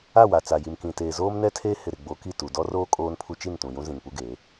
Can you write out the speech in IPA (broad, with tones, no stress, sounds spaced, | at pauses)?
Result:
a˦˨ w a˨ t͡s a˨ j i˨ m k ĩ˨ t eː˨ z oː˦ m n ɛ˦ tʰ eː˦ h ɪ˨ ɾ ɪ˨ ɡ͡b o˨˦ k i˦˨ t u˨ d ɔ˦ r oː˦ kʼ oː˦ n pʰ u˦ t͡ʃ i˦˨ n t ũ˨ j ũ˦ z ĩ˨ ŋ p u˦ ɡ eː˨˦